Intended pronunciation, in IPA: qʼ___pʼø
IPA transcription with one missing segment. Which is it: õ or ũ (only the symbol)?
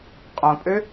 õ